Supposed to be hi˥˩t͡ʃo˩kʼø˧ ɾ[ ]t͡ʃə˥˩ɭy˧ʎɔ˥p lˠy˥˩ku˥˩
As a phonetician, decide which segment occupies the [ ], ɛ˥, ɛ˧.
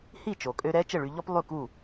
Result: ɛ˥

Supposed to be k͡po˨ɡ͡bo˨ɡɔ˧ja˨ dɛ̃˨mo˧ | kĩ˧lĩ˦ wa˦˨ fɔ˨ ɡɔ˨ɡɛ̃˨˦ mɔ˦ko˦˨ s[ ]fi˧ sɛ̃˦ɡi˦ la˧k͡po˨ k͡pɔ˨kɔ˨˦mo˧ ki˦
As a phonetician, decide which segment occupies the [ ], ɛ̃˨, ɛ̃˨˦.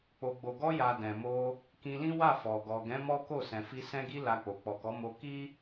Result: ɛ̃˨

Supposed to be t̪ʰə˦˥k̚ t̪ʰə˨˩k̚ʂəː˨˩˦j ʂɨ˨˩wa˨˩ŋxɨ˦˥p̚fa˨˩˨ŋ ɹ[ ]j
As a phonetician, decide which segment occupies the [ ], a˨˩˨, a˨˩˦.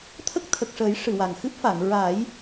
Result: a˨˩˦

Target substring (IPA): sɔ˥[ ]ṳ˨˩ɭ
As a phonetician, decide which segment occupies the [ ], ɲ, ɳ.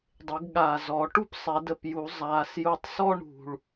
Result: ɳ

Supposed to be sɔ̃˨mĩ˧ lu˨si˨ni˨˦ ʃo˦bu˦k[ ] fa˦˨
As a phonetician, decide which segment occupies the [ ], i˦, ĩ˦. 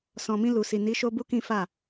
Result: ĩ˦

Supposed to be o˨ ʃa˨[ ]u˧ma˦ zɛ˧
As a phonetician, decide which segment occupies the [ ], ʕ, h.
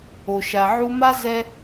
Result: ʕ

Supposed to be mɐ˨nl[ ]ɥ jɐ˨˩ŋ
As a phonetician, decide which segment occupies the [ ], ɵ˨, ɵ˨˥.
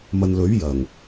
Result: ɵ˨˥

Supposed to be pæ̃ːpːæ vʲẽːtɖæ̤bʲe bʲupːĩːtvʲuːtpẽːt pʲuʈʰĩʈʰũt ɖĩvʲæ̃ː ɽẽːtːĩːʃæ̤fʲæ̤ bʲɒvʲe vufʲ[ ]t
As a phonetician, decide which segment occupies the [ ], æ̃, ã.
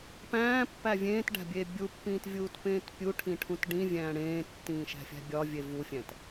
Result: æ̃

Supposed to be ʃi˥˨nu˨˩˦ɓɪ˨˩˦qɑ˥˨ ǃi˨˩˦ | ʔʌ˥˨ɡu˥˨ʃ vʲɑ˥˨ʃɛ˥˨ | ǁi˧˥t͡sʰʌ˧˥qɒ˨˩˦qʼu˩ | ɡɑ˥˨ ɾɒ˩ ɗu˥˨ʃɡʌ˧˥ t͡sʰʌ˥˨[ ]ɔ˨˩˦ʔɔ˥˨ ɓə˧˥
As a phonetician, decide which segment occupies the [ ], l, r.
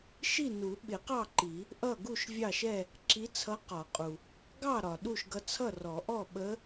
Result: r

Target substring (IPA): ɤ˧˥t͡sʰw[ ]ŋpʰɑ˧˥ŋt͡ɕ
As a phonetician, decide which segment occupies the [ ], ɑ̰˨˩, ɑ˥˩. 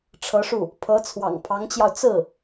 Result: ɑ̰˨˩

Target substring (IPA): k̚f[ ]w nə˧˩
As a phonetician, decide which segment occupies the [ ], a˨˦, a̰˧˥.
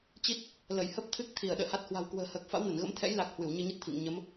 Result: a̰˧˥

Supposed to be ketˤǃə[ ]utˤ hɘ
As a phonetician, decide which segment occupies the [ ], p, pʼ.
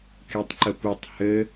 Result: p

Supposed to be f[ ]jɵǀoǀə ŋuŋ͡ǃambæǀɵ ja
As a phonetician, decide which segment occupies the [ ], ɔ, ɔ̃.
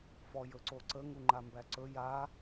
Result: ɔ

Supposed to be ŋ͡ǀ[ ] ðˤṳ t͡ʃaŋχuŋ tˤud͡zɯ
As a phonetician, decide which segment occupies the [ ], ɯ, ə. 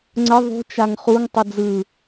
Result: ə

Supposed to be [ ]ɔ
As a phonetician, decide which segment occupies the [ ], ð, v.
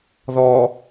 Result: ð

